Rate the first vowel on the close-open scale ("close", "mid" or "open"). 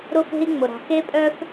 close